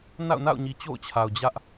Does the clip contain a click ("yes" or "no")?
no